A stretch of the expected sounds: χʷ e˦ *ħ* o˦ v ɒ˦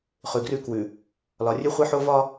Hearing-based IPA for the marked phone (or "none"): ħ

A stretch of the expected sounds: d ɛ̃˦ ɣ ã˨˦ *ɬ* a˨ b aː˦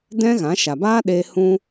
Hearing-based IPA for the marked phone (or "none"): ʃ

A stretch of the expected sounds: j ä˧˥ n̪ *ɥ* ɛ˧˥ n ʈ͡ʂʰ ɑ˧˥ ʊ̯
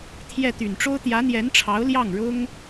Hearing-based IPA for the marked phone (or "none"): j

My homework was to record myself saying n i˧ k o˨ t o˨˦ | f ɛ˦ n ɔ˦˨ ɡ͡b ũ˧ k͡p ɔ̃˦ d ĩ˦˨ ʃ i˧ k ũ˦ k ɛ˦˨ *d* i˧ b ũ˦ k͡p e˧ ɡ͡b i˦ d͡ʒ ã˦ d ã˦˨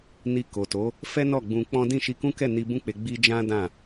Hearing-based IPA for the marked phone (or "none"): n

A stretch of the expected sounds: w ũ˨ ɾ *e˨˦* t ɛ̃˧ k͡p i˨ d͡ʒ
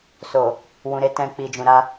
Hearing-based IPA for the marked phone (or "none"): e˨˦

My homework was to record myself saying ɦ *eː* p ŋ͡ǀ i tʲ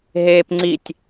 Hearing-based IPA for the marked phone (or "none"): eː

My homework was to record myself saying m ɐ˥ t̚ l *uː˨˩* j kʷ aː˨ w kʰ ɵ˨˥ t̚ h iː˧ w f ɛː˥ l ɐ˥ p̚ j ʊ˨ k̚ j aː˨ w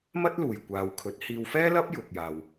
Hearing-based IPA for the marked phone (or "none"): uː˨˩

